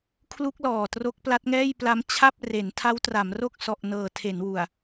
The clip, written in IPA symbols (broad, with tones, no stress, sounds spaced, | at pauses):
kʰ l u˦˥ k̚ l ɔː˨˩ t r o˦˥ k̚ p l a˦˥ t̚ ŋ ɛː˥˩ j p l a˦˥ m t͡ɕʰ a˥˩ p̚ r e˩˦ n tʰ a˦˥ w t r a˩˦ m r o˥˩ k̚ s ɔ˨˩ ʔ n ɤː˨˩ tʰ e˩˦ n w u˨˩ a̯